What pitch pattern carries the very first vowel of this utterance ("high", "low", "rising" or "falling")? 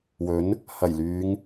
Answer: rising